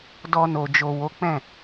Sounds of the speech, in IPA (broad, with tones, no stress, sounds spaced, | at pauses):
d ɔ˧ n o˨ d͡ʒ o˨ w o˨˦ k͡p ɛ̃˦˨